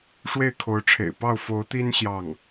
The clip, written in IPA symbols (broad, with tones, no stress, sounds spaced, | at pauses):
ʂ w e˥˩ ɪ̯ kʰ o˧˥ ʊ̯ ʈ͡ʂʰ ḛ˨˩ ɪ̯ p ɑ˥˩ ʊ̯ f o˧˥ ʊ̯ t̪ i˥ n ɕ j ɑ˥˩ ŋ